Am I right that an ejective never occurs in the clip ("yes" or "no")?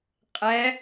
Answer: no